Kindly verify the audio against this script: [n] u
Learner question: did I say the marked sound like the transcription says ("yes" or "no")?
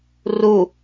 no